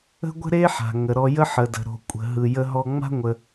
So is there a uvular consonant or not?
no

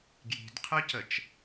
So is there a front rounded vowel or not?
yes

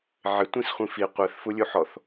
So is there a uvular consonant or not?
yes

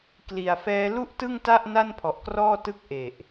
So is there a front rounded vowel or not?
no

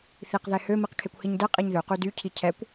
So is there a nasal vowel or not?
no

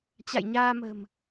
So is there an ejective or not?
no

